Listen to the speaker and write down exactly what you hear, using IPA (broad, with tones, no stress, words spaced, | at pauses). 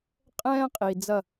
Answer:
qʼɛ̃ː˦ qʼi˨ d͡zɐ˦˨